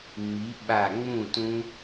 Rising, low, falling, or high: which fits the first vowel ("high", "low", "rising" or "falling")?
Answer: rising